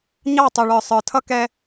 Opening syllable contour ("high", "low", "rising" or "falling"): falling